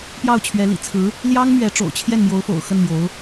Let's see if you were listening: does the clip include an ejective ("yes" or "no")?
no